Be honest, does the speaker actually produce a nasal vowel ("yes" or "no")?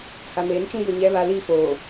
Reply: yes